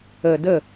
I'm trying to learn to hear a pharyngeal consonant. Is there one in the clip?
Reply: no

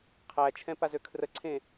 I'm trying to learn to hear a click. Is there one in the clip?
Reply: yes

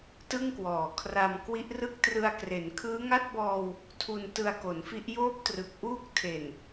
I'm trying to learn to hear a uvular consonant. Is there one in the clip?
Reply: no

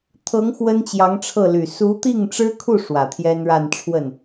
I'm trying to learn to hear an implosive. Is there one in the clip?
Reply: no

